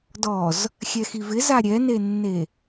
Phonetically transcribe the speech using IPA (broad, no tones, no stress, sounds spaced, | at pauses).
d ɔ z | xʲ ɛ x i v ɪ z a ɾʲ ɛ n e nː e